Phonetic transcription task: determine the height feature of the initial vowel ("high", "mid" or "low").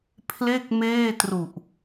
mid